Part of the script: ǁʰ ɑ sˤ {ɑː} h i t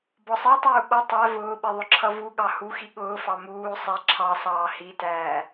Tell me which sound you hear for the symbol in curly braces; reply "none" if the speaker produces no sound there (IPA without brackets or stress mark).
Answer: ɑː